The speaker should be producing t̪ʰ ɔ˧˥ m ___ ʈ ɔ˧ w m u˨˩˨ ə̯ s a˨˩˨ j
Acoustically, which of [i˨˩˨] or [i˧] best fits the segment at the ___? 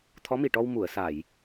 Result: i˨˩˨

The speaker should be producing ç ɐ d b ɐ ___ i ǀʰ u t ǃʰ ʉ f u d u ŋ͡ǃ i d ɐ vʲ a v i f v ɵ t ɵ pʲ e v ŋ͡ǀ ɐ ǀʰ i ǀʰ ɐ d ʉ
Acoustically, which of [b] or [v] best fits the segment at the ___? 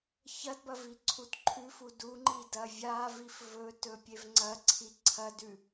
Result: v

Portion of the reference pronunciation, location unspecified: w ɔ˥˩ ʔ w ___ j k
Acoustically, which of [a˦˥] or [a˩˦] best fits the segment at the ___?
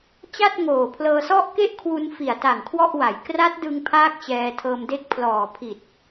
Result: a˩˦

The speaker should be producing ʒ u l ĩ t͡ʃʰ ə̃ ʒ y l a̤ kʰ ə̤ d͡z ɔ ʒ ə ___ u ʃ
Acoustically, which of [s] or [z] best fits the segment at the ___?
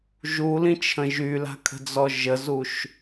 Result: z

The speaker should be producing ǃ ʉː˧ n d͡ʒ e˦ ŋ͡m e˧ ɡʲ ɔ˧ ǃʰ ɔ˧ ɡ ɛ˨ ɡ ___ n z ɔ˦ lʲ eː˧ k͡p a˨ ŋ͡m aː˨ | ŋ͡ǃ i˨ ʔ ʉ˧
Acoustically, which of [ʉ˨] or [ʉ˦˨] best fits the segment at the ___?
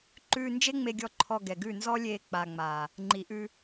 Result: ʉ˦˨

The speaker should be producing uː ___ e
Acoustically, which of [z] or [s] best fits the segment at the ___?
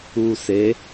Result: s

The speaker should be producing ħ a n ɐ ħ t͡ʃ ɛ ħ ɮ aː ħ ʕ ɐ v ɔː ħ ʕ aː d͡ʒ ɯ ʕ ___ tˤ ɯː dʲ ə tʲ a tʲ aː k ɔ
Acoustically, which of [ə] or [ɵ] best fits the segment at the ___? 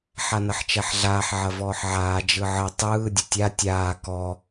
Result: ə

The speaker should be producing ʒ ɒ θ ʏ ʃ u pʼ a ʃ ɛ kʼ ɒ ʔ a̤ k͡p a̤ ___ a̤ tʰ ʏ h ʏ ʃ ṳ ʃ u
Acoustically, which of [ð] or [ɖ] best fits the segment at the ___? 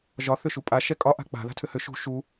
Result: ð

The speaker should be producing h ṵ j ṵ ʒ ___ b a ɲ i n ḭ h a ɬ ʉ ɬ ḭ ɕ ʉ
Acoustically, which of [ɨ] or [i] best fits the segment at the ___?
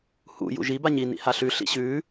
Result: i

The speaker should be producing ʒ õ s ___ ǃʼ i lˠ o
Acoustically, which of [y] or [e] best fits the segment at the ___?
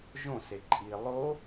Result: e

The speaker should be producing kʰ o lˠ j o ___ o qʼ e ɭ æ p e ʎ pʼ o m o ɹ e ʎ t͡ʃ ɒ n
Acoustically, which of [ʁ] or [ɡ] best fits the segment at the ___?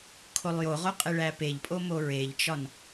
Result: ʁ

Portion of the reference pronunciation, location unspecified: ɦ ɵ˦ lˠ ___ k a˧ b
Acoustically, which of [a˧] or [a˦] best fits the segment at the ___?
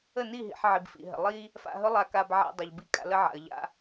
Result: a˧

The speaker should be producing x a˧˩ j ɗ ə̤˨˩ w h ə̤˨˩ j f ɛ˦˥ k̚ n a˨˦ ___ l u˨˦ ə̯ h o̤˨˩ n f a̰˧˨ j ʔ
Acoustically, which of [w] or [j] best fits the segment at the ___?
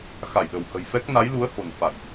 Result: j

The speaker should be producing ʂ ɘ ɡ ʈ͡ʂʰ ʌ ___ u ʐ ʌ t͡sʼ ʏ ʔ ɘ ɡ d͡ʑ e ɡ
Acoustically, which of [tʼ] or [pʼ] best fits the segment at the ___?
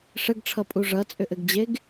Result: pʼ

